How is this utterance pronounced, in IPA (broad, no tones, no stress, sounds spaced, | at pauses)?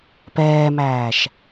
p ɛː m æː ʃ